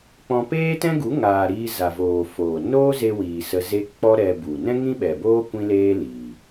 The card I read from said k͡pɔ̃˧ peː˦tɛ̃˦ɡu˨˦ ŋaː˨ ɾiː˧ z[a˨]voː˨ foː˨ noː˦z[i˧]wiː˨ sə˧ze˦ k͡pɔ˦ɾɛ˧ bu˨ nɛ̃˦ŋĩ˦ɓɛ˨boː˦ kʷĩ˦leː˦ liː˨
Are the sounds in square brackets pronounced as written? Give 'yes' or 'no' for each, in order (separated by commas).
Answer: yes, no